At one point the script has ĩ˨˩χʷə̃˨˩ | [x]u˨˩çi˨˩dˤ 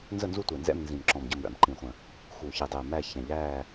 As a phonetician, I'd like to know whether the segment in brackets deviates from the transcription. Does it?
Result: no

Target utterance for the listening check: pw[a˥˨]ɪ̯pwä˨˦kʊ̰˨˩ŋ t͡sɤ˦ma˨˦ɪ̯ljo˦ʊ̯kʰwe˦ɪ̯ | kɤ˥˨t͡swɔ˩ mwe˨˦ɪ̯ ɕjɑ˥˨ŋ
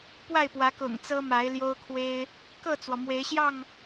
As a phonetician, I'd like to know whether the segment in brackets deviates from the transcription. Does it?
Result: no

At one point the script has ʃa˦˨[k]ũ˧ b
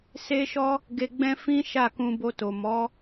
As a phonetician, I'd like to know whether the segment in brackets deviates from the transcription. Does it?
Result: no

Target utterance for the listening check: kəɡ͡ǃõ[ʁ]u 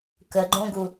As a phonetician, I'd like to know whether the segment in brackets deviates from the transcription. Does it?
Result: yes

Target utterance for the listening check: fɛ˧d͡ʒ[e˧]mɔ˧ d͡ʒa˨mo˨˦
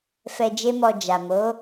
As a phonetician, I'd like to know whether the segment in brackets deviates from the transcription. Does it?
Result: yes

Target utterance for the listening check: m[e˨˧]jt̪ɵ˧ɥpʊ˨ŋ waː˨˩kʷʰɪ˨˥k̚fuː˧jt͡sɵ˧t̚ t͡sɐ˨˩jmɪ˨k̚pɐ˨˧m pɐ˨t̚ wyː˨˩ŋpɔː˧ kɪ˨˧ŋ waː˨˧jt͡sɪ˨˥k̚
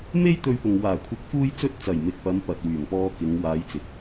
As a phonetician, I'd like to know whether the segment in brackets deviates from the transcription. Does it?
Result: yes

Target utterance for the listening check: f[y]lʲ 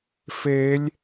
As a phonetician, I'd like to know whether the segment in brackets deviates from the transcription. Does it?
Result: yes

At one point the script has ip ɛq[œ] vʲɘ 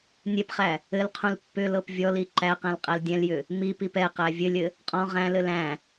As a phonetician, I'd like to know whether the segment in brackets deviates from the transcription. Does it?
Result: yes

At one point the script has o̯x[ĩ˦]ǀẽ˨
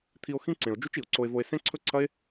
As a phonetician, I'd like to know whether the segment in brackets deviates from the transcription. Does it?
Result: no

